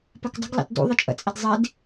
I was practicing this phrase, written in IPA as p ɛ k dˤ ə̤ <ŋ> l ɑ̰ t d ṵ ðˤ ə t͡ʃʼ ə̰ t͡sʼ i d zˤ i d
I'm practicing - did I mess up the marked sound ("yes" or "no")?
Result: yes